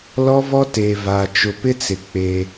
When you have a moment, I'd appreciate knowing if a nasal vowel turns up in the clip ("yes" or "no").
no